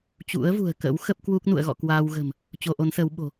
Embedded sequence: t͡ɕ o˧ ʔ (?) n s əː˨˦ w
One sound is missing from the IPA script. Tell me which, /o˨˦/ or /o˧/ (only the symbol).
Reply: o˨˦